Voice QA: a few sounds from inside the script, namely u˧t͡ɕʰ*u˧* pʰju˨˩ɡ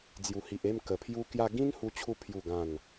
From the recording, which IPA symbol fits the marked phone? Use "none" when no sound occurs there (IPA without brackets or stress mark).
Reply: u˧